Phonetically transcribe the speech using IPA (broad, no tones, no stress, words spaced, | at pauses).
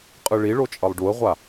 qʼɯɭiɭo t͡ʃʼʌlˠɖuə̯ʁʷa